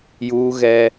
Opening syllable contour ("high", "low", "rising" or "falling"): high